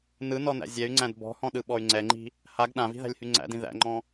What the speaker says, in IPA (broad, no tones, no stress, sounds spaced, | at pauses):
n ɯ n ɔ n æ̰ zʲ ɛ y̯ ŋ͡ǀ æ̃ d b ɔ̤ h ɔ̃ ɗ ɯ ɓ ɔ y̯ ŋ͡ǀ ɛ ŋ͡ǃ i̤ | h a ɡ ɗ ã v i̤ ð æ̤ lʲ h y ŋ͡ǀ æ̰ d ĩ ð æ̰ ŋ͡ǃ ɔ̃